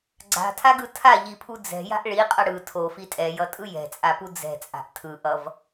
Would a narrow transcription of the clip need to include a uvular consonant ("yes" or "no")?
yes